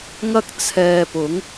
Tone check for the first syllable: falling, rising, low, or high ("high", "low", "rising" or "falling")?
high